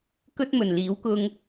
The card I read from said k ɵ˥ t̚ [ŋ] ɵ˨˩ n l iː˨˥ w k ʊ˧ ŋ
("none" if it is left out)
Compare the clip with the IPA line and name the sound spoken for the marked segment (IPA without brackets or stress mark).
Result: m